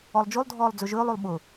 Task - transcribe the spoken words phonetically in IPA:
ɔlˠd͡ʒolˠdʱɔːlˠ d͡zɵʒɵːlˠolˠ ɓʊ

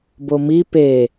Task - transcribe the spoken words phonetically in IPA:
bomi pe

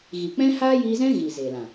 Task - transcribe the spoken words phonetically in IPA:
ɣi˨k͡pɛ̃˦ haː˦jiː˧zɛ̃˦ ɣi˨ zeː˨lã˨

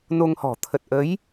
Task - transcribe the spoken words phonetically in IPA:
no˧ŋhɔ̤˨˩ t̪ʰə˨˩t̚ʔə˨˦j

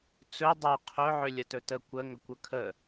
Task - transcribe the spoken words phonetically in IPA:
t͡sɵ dˤo qʰɵ ʕʏlʲətɵtə kʷə ŋɵkʷɵkʰə

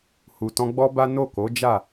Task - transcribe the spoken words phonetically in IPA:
hu˨tɔ̃˧ɡ͡bɔ˦ba˦ no˦˨ko˨˦ d͡ʒa˦˨

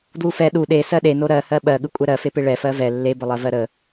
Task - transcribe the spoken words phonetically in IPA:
dwufɛ ɗu ɗe sɜɗeno ɾɜhɜ ɓɜɠɯ kʷʼɛɾɜfepe ɭɛfɜ vɛ lːebəlˠɜvɜ ɾə

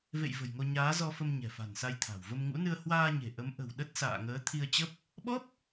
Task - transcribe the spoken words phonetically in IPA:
vḛ˧˨j və̤˨˩jŋo˧ ɲaː˨˦zɔ˧fə˧m ɲɛ̤˨˩fa̤˨˩nsa˧jt̪ʰa̤˨˩w və˧mŋṵ˧˥nɨ˧ə̯ hwaː˧ɲe̤˨˩ ʔə˨˦m ʔə̤˨˩wɗə˦˥t̚sa̰ː˧˨ ŋəː˨˦t̪ʰi˧ə̯t͡ɕə˦˥p̚ | ɓɔ˦˥p̚

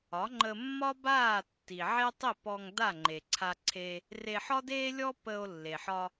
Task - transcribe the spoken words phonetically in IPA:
ɒ˩˥ŋ͡ǃə˧mːɒ˥ baː˥˩tːi˩ ʕe˥tˤi˥˩p ɔ˧ŋ da˥˩ŋ͡ǃe˩ǀʰa˧ǀʰe˧ | re˧ħɒ˥deː˥lʲɔ˥ pə˧o̯ lːe˩ħɒ˧

